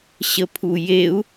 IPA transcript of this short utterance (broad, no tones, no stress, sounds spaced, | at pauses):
ɕ ə pʰ u j e u̯